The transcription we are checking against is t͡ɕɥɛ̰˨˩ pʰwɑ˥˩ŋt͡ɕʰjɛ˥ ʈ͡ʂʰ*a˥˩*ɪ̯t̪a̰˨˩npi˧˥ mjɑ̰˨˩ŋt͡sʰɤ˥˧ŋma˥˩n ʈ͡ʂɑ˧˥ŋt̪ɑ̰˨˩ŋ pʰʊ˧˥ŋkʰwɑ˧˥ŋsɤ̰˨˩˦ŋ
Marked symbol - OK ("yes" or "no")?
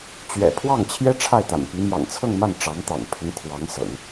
yes